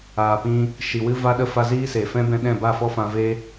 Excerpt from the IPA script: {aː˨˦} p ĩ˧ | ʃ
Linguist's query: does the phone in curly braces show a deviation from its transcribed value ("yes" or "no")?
yes